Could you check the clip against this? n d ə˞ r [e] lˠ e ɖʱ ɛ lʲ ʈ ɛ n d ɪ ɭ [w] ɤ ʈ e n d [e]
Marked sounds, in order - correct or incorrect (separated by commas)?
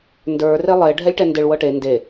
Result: correct, correct, correct